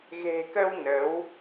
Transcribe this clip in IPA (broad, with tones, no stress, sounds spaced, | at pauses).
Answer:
ɣ e̤˨˩ k ə˧ w n ə˨˦ w